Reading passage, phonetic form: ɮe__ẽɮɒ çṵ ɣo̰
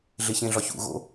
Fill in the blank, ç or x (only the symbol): ç